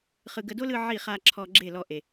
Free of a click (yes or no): no